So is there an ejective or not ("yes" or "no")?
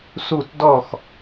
no